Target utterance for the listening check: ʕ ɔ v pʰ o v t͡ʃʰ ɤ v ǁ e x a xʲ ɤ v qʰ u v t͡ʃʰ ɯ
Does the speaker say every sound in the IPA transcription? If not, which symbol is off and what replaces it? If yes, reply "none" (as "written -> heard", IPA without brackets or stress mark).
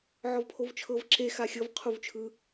none